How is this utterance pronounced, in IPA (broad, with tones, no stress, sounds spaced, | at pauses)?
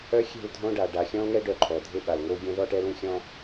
œ˦ xʲ ɛ̤˦˨ l dʱ õ˦ ɖ a˨ ɖ a˨ xʲ ɔ̃˦ l ŋ ɛ˦ ɖ œ˦ ǃʰ ɔ˨ dʱ e˦ ɓ a˨ l ŋ o˦ ɡʲ ɛ̃˦ ð ɔ˦ ʈ ɛ˦ l ũ˦ xʲ ɔ̃˦